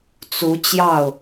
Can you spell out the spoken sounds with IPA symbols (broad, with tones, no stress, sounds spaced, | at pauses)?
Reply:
t͡s u˧˥ t͡ɕ j ɑ˥˩ ʊ̯